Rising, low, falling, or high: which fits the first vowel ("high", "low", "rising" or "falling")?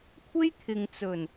high